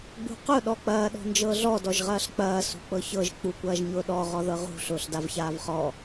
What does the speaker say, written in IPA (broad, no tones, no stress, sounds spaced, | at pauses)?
ɡ͡b ṳ q ʊ ɗ ɔ k͡p ɐː ɗ ɔ̤ n d͡ʒ ɤ ɮ ɔ d ɔ ʒ ʁ ɐː ɬ k͡p ɐː s ṳ k͡p ɤ ç ɤ ʒ k͡p u kʷ ɐː ʒ ɲ ʊː ɗ ɔ ʁ ɔ ð ɤ ʁ ṳ ɬ ʊː ɬ d a v ç aː v χ ɔ